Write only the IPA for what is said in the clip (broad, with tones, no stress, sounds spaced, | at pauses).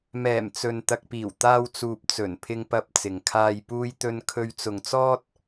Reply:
m ɛː˨˩ m t͡s ɵ˨ n t̪ ɐ˨ k̚ p iː˨˩ w t̪ aː˧ w t͡s uː˨ p̚ t͡s ɵ˨˩ n pʰ ɪ˧ ŋ p ɐ˧ p̚ t͡s ɪ˨ ŋ kʰ aː˧ j p uː˥ j t̪ ɵ˥ n kʰ ɵ˥ ɥ t͡s ʊ˧ ŋ t͡s ɔː˥ t̚